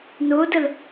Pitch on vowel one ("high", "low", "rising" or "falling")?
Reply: rising